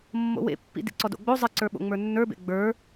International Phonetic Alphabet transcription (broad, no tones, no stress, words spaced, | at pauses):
mːo̰wḛpːḭ dḭǀɔdo̰ɡ͡bo zˤɘǀə˞ɓo̰ ŋ͡mə˞nːə˞bḛ ɡ͡bə˞